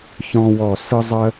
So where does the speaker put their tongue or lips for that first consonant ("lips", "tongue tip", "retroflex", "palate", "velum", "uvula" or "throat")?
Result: palate